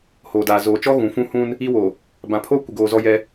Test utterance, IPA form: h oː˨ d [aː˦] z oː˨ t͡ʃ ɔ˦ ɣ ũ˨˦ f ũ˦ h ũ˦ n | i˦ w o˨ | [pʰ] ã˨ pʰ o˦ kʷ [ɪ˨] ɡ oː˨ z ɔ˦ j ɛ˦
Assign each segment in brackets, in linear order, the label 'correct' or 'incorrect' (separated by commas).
incorrect, incorrect, correct